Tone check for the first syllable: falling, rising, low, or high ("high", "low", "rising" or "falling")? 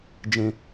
high